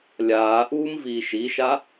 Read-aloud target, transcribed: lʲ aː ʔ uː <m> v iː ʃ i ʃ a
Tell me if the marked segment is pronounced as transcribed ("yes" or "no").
yes